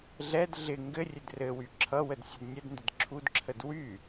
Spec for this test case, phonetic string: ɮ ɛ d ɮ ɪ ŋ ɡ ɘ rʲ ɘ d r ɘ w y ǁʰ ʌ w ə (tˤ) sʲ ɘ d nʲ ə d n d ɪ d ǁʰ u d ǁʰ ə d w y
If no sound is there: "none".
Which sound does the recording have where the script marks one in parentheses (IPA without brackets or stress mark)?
d